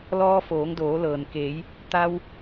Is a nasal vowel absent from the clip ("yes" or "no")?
yes